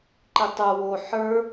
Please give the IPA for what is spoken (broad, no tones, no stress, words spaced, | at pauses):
ǃitˤə˞ wo ħə˞